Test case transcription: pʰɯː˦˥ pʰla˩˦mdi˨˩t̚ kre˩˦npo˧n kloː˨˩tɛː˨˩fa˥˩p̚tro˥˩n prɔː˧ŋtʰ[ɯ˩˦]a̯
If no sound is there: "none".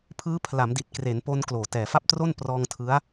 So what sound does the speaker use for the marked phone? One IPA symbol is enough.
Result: ɯ˦˥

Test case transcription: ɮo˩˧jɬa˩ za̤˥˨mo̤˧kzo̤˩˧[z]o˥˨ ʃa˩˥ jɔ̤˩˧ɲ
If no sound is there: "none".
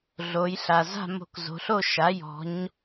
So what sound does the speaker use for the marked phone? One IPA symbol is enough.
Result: ɬ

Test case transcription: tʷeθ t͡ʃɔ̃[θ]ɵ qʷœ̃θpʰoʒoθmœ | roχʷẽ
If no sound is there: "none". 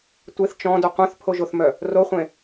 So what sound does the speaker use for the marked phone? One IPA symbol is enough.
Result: d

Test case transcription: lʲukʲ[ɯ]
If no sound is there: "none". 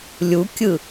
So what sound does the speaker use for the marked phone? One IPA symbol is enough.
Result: ɯ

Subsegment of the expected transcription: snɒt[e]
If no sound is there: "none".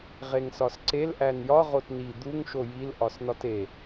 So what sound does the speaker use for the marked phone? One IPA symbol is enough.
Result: e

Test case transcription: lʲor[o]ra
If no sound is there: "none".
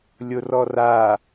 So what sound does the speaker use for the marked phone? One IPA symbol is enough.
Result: ɔ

